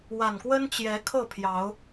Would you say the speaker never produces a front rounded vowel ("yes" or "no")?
yes